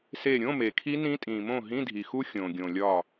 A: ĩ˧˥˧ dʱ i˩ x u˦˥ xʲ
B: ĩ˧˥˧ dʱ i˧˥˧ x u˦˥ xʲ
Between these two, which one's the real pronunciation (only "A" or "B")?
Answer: A